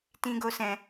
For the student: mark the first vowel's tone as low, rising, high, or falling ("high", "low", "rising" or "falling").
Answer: high